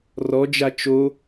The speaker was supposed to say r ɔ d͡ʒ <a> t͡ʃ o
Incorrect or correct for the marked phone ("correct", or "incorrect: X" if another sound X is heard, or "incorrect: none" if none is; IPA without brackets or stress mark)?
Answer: correct